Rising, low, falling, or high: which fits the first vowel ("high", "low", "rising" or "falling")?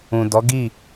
low